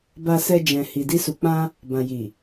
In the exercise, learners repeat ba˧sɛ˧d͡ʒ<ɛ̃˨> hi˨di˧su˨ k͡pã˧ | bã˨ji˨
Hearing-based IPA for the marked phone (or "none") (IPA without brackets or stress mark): ɛ̃˨